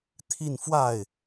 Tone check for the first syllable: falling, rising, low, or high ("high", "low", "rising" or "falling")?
falling